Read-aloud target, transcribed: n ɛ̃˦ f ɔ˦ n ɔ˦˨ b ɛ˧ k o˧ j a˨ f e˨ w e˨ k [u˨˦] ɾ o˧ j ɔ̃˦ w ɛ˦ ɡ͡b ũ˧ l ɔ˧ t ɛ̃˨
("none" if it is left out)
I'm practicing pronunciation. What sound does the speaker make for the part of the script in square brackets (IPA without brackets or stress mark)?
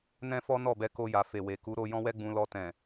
u˨˦